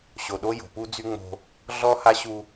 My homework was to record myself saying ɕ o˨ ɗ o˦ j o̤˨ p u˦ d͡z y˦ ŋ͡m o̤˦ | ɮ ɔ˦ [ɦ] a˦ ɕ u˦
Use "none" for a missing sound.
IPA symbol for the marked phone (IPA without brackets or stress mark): h